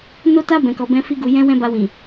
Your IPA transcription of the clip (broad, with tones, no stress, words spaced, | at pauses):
no˦ta˦ bɛ̃˧kɔ˧bɛ̃˦ fi˦ɡu˧jɛ̃˦wɛ̃˦ ba˧wĩ˨